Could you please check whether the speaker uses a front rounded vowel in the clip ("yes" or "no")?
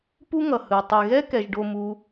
no